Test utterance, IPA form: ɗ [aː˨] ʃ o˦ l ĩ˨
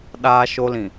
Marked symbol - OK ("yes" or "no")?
no